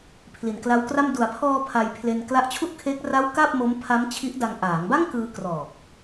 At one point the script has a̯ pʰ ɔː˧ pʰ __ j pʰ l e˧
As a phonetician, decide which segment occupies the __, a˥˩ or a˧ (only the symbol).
a˧